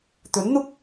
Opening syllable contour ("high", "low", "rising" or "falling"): rising